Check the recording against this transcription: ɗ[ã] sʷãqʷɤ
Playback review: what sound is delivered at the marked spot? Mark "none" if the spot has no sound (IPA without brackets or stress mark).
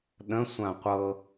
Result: ə̃